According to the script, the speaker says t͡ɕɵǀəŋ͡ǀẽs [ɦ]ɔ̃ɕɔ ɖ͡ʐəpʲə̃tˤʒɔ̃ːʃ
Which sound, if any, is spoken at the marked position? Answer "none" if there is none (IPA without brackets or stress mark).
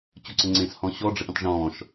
h